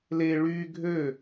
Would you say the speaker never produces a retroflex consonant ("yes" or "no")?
no